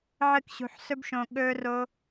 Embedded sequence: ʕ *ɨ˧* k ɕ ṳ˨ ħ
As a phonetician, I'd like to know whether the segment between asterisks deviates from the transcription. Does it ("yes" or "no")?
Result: no